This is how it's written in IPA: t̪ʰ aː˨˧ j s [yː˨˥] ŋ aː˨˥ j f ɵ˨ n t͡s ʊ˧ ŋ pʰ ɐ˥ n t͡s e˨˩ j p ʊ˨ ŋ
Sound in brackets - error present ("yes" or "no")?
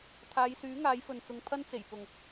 no